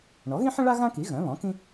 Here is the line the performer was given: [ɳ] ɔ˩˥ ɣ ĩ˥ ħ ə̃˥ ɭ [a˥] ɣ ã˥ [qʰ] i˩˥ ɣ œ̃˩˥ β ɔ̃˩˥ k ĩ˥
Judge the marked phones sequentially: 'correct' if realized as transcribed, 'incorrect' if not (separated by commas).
correct, correct, incorrect